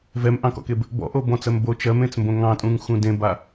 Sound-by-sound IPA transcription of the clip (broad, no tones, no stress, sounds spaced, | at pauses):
v ɛ m ʔ ɑ̃ k ɔ̰ k e b | b ɔ̰ ʔ o b ɔ̃ t͡s ɜ m b o t͡ʃ ɜ m ẽ t͡s m b õ ŋ ɑ̃ tʼ ũ ŋ x ũ d ẽ b a